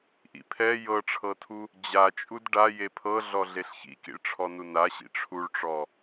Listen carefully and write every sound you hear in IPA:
ʔ ḭ pʰ ɛ j ɤ ʈ͡ʂʰ ɤ tʰ u | d͡ʑ a t͡ʃʼ u d ɖ a j e pʰ ɤ ɮ ɔ ɮ e ɬ ç ḭ k ḭ ɭ ʈ͡ʂʰ ɔ n u n a ɕ ḭ ʈ͡ʂʰ u ɭ ʈ͡ʂ ɔ

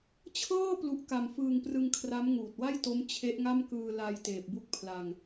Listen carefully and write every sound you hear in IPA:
t͡ɕʰ ɤː˥˩ p l u˦˥ ʔ k a˧ m f ɯː˧ ŋ p r ɯ˧ ŋ kʰ r a˦˥ m ŋ uː˨˩ t̚ w a˥˩ j t o˦˥ m t͡ɕʰ e˦˥ ʔ ŋ a˥˩ m k ɯː˧ l a˧ j t eː˨˩ p̚ b u˥˩ k̚ pʰ l a˧ ŋ

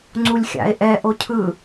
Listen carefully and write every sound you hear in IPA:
ŋ͡ǀ u lʲ xʲ a̰ e̯ ʔ ɛ ʔ o cʰ ɯ

